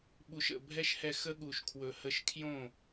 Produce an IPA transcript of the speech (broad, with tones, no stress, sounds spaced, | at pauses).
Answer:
ɓ u˨ ʃ ə̰˦˨ bʱ ɛ˦ ʃ h ɛ˧ x ə˦ ɠ u˨ ʃ kʰ w ɵ˨ h ə˧ ʃ kʰ j õ˦˨